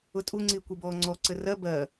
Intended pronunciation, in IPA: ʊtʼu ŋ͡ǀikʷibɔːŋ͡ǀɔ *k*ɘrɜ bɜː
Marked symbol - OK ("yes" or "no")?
no